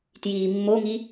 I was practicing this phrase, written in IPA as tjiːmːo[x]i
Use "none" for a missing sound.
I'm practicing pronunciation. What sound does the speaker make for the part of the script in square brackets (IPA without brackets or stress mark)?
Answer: ŋ